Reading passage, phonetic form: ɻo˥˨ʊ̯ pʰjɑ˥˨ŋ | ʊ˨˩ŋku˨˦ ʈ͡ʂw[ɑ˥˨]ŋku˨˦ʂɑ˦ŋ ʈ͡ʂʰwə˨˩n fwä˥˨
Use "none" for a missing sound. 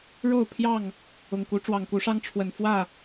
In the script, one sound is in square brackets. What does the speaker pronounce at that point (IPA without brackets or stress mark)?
ɑ˨˩